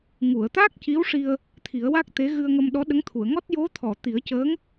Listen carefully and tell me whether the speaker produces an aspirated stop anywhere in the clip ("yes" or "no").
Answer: yes